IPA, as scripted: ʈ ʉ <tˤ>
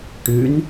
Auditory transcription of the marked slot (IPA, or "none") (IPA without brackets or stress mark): n